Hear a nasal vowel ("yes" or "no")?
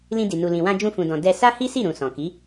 yes